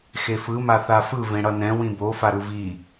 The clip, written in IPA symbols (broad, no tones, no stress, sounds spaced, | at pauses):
x e f ɯ m a θ a f ɯ v ẽ ɽ ʌ n ɛ̃ w ĩ b o f a ɾ ɯ v i